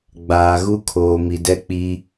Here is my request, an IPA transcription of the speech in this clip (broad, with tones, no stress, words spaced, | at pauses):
ɡ͡baː˨ɣu˦kʰoː˨ mi˨dɛ˦k͡pi˦